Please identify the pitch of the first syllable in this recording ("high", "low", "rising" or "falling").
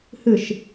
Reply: falling